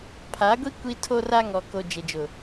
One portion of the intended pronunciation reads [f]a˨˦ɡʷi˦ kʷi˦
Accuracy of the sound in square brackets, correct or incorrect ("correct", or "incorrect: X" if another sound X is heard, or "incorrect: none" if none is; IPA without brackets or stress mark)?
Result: incorrect: pʰ